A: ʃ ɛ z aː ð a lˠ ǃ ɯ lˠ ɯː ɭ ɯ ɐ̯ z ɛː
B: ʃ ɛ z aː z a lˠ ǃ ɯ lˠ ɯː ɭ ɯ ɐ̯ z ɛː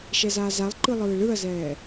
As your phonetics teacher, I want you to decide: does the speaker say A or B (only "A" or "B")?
B